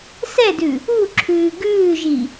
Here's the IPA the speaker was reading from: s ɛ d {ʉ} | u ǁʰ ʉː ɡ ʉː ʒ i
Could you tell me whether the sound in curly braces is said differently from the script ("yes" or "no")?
no